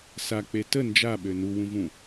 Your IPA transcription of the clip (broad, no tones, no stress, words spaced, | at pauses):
sak͡pe tə nd͡ʒaɓø nuwũvũ